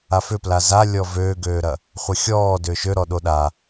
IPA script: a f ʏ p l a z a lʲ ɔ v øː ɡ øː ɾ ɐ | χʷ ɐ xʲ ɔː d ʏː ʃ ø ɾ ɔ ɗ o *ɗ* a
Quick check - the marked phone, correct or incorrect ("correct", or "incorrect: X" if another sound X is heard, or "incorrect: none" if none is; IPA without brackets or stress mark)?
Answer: correct